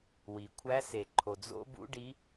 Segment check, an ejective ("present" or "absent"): absent